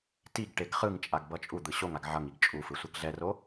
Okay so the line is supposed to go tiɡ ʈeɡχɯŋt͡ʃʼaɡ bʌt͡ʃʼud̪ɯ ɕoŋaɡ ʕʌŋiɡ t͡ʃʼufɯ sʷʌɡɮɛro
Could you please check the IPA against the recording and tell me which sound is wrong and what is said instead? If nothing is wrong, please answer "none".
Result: none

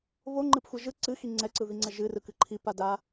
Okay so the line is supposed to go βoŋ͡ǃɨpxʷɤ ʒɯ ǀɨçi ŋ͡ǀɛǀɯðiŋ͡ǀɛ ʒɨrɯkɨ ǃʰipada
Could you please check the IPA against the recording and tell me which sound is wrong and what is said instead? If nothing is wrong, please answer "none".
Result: ç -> x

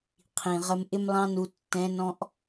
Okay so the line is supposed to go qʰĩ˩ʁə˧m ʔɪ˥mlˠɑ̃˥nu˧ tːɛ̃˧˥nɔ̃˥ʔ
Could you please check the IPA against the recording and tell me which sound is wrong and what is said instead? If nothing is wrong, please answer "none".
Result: none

